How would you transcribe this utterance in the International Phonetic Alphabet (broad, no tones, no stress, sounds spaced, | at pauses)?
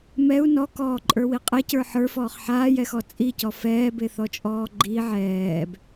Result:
m ɛ u̯ n ɔ k ɔː ǃʼ ə˞ w i qʼ ɛ c ə˞ ħ ə˞ f ɔː χ ħ aː j ɛ x ɔ t͡sʼ i c ɔ f ɛː b e θ ɔ t͡ʃʼ ɔː ɡ͡ǃ i ʕ ɛː b